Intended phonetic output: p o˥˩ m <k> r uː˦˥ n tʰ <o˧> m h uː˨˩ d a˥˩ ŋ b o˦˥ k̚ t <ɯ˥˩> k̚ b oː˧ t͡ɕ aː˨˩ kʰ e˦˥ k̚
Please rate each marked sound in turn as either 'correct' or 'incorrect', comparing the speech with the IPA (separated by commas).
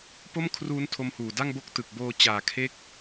incorrect, correct, incorrect